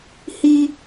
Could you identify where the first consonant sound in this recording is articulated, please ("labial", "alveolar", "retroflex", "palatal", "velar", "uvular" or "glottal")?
glottal